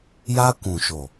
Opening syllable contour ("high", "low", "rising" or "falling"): high